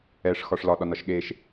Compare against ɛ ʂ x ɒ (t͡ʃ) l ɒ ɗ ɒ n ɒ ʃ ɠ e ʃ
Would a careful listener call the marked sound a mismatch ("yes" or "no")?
yes